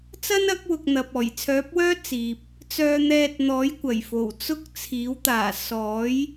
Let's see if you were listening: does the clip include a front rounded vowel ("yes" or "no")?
yes